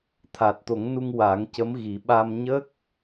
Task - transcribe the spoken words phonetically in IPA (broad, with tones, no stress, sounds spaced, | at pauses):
t̪ʰ a˨˩ t̚ t̪ o˨˩˦ ŋ n u˧ ŋ w a˨˩˦ ŋ c ə˧˥ m ɣ i˨˩˦ ɓ a˧ m ɲ ə˦˥ k̚